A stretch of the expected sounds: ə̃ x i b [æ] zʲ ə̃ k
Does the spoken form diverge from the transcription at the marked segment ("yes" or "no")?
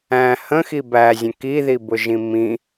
no